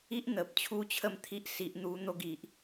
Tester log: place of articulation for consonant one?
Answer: glottal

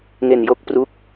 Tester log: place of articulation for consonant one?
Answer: velar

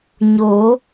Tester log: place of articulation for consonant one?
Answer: palatal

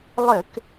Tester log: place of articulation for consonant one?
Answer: alveolar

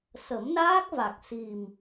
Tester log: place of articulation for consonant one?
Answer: alveolar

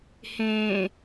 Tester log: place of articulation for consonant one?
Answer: glottal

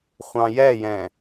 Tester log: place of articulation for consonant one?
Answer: uvular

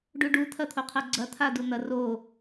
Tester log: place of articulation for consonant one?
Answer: retroflex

